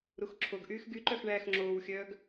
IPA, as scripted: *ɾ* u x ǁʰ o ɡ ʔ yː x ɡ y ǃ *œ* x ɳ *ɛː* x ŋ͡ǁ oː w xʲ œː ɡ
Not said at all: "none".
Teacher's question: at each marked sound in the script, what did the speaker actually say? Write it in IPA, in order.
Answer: ɾ, œ, æː

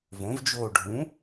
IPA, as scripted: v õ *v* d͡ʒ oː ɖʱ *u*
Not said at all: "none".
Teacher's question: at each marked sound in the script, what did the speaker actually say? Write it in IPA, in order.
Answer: v, ũ

